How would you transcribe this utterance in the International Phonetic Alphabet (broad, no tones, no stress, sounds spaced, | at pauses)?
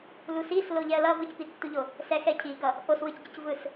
l u s i s l o ʎ ɛ ə̯ l ʌ v ɯ c p i tː u ʎ o | s ɛ x ɛ cʰ i ɡ ʌ | ʔ o s w ɯ c ɟ ɯ c v ɯ s